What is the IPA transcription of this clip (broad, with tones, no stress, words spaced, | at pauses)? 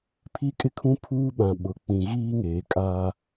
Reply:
pʰi˦kʼɪ˦kʰũ˦ pʰuː˦ɓã˨ ɓʊ˨ k͡pĩ˨ɣiː˦ŋeː˨kʼaː˦